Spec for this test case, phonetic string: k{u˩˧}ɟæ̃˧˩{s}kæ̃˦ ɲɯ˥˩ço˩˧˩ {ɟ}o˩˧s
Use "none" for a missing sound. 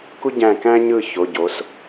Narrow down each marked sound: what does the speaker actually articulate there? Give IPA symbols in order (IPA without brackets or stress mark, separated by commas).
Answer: u˦, none, ɟ